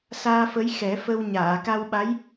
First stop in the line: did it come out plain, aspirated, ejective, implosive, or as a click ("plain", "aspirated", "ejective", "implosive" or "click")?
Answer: plain